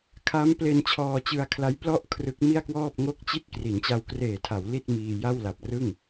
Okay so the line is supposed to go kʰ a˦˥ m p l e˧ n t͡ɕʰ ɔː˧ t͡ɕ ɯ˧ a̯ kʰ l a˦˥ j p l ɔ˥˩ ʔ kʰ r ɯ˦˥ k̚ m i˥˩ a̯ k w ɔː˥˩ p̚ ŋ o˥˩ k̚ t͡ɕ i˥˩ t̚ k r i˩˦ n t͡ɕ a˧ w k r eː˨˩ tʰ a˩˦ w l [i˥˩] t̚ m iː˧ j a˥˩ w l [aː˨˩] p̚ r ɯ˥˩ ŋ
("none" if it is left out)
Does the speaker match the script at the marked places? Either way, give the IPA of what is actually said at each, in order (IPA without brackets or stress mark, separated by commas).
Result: i˥˩, a˨˩